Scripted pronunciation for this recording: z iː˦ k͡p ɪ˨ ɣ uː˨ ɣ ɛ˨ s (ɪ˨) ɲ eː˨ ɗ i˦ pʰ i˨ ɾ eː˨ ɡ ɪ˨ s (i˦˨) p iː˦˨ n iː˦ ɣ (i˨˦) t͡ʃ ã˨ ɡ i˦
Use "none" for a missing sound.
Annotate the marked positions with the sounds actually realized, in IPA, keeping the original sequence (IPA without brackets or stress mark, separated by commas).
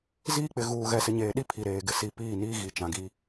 ɪ˨, i˨, i˨